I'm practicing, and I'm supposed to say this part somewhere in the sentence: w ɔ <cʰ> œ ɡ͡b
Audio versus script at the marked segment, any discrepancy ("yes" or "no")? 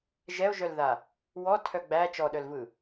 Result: yes